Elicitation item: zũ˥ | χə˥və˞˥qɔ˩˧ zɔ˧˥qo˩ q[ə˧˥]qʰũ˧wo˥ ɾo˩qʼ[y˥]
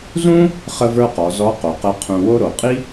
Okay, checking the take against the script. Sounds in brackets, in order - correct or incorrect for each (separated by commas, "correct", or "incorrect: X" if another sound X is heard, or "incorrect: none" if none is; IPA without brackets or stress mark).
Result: correct, incorrect: i˥